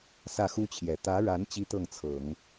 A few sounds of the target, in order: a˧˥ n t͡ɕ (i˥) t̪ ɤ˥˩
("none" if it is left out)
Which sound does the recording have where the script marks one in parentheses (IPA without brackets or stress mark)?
i˥